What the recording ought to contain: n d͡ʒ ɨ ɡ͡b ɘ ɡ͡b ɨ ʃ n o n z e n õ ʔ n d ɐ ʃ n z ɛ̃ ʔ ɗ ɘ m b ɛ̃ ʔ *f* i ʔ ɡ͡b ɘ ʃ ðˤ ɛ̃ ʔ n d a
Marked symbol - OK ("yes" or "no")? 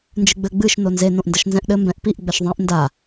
no